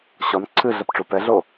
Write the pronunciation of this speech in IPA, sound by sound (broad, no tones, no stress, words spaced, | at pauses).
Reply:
ɕɔn ǀʰɨ ɮɐpʈ͡ʂupɛɮo